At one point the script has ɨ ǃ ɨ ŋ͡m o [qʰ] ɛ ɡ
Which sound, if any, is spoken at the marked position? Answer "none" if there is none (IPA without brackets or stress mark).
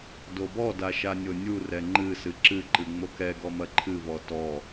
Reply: k